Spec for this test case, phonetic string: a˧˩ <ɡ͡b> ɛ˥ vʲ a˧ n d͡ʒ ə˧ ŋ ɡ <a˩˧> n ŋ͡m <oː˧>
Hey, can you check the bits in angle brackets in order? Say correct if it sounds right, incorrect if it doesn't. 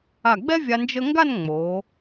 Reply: correct, incorrect: a˥˧, incorrect: oː˩˧

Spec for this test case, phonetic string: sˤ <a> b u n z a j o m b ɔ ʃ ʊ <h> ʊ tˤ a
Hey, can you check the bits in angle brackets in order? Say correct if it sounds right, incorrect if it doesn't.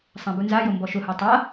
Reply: incorrect: ã, correct

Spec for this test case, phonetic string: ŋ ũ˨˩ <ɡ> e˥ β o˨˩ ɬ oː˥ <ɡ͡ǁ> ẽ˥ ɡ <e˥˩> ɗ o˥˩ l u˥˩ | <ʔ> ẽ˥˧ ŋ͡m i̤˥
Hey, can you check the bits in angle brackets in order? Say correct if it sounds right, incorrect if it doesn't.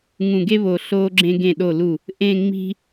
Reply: correct, correct, incorrect: ẽ˥˩, correct

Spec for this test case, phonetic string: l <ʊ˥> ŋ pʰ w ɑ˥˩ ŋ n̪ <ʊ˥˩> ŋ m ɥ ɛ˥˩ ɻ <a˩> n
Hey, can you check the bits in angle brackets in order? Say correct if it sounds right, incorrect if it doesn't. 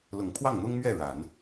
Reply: incorrect: ʊ˨˩, incorrect: ʊ˥, incorrect: a˨˩˦

